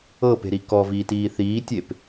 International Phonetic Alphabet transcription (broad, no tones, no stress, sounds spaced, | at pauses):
ɤ p e̤ ɾ i k ɔ v iː t iː θ iː tʲ e p